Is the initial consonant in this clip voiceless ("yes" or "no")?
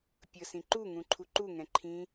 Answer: yes